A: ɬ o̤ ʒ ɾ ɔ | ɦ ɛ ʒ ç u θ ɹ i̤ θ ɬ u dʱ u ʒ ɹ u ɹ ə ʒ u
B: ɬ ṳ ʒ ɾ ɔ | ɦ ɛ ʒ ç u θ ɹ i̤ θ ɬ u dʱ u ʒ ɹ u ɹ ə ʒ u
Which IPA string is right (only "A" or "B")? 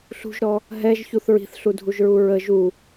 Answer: B